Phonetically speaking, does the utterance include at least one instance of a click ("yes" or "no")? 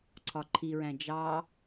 yes